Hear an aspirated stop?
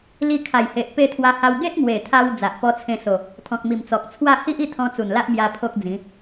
yes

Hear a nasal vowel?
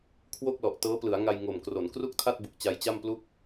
no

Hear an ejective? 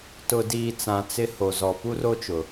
no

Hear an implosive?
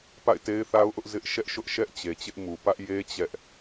no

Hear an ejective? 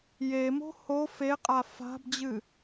yes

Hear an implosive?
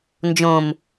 no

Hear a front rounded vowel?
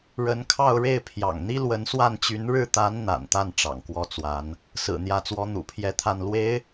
yes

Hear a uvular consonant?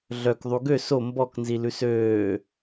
no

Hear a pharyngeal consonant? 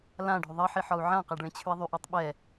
yes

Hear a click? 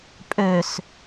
no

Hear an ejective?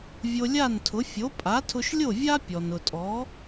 yes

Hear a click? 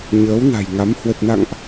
no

